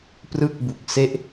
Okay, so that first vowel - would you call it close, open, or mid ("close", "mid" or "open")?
close